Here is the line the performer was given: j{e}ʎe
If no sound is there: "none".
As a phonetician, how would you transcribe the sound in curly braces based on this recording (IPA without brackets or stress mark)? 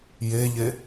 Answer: e